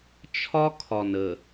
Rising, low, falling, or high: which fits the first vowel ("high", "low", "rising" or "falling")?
high